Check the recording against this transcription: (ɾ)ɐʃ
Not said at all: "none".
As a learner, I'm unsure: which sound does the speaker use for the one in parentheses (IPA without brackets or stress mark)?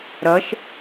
ɾ